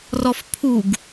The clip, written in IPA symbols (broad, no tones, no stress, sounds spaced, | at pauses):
r ɔ f pʰ u ɡ